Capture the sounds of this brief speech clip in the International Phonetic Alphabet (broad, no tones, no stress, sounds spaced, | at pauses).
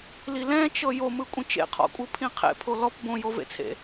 l i l ɛ̃ t͡ʃ ɤ j o m ɯ kʷʼ ĩ t͡ʃ ḛ qʰ ɔ̰ kʷʼ ɯ pʰ ĩ qʰ ḛ pʰ o l ɔ p b õ j o v ḛ t͡sʰ ḛ